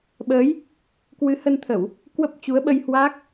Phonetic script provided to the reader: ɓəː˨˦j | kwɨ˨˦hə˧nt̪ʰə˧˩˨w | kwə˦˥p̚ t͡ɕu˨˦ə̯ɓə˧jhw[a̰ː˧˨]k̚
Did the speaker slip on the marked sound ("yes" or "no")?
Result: yes